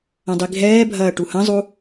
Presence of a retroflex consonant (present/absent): present